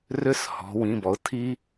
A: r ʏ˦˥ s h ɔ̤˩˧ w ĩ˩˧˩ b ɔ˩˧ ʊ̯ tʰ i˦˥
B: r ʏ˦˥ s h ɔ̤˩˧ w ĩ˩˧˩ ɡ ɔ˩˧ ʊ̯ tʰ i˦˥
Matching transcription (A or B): A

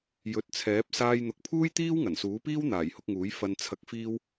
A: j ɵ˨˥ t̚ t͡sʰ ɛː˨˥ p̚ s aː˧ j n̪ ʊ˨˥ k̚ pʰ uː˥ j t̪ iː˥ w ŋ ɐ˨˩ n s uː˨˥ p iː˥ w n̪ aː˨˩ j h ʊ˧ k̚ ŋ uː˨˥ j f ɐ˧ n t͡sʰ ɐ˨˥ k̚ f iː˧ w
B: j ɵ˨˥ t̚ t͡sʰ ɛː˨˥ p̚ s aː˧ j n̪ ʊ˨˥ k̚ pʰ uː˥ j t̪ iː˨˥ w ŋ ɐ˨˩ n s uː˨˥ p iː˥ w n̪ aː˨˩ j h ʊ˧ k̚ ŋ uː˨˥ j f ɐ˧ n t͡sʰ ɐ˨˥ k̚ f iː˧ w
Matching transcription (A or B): A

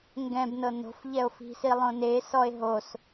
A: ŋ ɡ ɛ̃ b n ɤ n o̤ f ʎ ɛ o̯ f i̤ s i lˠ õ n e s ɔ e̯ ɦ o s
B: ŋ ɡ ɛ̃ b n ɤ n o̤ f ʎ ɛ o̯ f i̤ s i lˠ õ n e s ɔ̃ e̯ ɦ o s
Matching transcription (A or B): A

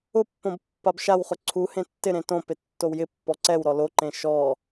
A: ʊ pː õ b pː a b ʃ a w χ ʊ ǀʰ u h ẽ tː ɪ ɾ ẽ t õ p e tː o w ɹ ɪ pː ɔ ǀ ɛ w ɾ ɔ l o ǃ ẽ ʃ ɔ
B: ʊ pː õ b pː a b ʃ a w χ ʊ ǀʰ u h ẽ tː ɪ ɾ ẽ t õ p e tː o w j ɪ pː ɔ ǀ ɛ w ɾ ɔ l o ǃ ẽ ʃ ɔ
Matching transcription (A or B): B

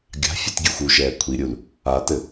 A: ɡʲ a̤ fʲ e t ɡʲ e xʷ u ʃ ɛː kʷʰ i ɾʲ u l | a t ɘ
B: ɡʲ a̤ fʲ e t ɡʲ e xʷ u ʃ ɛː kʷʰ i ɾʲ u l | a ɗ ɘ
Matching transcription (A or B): A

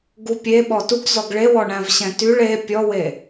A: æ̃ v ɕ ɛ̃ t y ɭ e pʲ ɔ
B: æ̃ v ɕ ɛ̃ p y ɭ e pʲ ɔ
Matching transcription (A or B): A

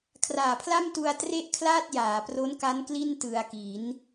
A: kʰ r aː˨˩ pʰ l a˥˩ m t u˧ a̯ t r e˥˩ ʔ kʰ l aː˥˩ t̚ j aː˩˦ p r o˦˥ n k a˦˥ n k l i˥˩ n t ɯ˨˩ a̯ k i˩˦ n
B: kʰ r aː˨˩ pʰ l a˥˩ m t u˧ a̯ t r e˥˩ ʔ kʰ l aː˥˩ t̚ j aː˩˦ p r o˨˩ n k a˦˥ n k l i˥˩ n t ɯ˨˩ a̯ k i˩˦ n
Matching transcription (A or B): A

